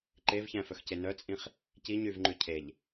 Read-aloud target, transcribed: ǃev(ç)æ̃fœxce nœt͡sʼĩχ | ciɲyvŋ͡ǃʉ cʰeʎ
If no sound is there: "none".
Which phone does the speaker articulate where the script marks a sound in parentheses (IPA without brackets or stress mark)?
ç